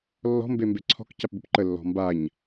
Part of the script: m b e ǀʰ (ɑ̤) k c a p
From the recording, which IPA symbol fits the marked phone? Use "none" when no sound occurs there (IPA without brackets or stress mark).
ɔ̤